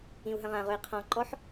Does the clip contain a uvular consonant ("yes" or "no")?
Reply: yes